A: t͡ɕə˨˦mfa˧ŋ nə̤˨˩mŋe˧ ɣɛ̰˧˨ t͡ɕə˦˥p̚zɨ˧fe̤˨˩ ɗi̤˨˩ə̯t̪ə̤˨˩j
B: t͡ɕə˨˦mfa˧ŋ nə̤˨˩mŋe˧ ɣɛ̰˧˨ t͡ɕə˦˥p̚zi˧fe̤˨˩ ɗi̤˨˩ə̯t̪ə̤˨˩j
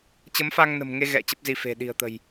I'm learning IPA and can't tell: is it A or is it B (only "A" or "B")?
B